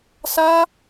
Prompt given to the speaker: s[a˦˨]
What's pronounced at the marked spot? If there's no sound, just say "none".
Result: a˦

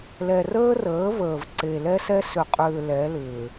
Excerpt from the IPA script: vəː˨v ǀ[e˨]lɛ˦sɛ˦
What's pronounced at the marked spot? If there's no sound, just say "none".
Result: e˨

